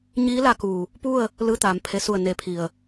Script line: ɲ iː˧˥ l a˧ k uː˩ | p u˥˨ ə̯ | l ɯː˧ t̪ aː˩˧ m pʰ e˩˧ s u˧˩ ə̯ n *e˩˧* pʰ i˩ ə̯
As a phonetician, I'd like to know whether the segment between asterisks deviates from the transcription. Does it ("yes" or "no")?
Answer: no